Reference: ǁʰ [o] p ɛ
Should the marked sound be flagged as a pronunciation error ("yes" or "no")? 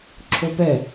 no